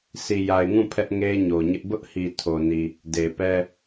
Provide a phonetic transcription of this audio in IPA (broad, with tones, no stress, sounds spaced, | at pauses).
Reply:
sʰ i˨ j a˨ ɪ̯ ŋ ũ˦˨ pʰ ɛ˦ ʔ ŋ e˦ ɪ̯ ɲ o˨ ɲ ɪ˦ ʔ b ʊ˦ ʔ h i˨ tʰ o˨ n i˨ | d e˨ p ɛ˦